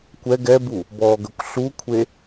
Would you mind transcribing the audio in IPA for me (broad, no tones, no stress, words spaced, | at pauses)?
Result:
kʷɛ ɡɛbu | bɔɡəkʷ ɬukʷʰe